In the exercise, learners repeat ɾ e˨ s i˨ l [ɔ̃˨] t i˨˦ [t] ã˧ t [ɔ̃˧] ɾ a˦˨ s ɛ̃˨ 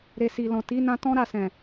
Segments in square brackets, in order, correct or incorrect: correct, incorrect: n, incorrect: ɔ̃˦

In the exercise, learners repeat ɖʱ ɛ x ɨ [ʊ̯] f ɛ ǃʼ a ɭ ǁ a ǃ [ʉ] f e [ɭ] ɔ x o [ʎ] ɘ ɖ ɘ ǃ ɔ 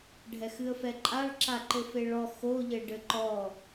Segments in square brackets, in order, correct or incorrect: incorrect: ə̯, incorrect: ɘ, correct, correct

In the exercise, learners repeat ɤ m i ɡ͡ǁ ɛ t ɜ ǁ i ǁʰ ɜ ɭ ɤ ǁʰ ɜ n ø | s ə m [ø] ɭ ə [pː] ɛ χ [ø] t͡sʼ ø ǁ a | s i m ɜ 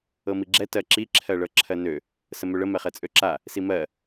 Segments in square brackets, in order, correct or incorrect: correct, incorrect: m, incorrect: ɛ

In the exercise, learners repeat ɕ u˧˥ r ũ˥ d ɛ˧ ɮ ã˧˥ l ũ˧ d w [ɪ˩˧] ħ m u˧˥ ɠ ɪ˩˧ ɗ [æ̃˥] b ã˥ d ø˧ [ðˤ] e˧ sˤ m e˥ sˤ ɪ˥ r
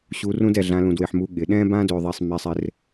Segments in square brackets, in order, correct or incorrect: incorrect: ɪ˧, incorrect: ɛ̃˥, correct

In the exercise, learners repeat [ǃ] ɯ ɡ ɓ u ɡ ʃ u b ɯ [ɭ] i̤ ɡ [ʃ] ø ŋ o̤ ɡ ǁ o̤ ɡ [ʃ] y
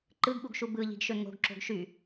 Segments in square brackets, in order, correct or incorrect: correct, incorrect: ʎ, correct, correct

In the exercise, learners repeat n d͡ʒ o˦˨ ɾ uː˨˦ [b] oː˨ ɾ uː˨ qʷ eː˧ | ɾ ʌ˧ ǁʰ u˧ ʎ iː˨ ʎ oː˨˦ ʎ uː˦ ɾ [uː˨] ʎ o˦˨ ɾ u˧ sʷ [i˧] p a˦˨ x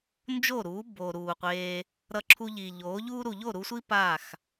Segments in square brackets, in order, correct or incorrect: correct, incorrect: u˨, incorrect: i˦

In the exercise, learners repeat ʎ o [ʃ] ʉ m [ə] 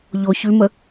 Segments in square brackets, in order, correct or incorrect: incorrect: ç, correct

